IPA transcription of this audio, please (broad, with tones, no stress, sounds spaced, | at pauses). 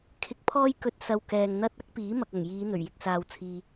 kʰ ɪ˧ k̚ pʰ ɔː˥ j k ɵ˧ t̚ s ɐ˧ w k ɛː˨ ŋ n̪ ɐ˥ t̚ ɐ˥ k̚ p iː˨˥ m ɐ˨ k̚ ɐ˨˩ ŋ j iː˨˧ n̪ ɵ˨˩ ɥ j ɪ˧ k̚ s aː˧ w t͡sʰ iː˧